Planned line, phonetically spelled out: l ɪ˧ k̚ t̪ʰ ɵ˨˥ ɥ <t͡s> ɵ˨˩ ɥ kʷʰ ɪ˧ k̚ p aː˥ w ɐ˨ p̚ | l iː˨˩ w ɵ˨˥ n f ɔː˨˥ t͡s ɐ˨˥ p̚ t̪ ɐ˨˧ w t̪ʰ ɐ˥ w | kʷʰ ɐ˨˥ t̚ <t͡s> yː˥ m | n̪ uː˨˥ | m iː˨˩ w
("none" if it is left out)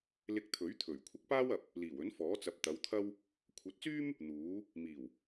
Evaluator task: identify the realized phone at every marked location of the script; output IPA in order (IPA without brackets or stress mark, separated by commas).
t̪ʰ, t͡s